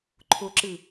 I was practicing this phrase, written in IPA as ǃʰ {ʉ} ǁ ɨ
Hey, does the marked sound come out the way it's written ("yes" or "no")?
no